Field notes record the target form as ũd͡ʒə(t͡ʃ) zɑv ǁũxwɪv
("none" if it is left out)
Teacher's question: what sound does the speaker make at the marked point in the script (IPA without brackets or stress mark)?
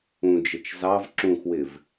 t͡ʃ